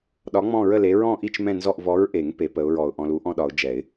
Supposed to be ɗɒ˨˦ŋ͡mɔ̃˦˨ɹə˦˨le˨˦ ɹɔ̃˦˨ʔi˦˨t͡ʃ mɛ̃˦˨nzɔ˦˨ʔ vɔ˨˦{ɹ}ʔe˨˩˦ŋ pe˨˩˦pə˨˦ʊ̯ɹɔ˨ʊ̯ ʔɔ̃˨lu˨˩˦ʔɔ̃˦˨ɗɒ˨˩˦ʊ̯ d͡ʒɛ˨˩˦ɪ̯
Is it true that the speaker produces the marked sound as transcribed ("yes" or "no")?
yes